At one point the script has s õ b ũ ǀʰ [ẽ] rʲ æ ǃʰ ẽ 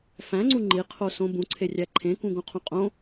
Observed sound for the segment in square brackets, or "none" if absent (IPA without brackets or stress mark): e